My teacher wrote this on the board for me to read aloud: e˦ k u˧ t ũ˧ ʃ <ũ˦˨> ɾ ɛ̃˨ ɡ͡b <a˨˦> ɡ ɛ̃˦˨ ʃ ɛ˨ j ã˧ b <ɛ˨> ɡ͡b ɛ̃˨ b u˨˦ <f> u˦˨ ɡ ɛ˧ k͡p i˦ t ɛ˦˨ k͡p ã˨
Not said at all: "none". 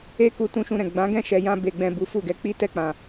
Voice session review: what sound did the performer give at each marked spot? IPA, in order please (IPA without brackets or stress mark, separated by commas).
ũ˧, ã˨˦, e˨, f